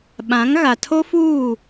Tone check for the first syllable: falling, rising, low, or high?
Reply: rising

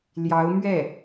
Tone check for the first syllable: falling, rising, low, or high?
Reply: rising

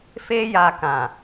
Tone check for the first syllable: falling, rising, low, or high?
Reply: high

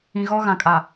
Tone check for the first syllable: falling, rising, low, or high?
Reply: low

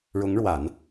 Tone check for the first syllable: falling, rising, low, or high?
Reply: rising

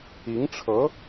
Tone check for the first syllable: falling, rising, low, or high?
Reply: rising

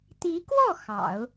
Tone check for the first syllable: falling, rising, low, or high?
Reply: rising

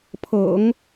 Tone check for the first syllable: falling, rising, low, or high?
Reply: low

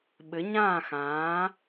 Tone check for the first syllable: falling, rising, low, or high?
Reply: rising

